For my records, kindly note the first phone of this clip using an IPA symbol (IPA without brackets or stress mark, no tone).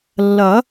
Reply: lː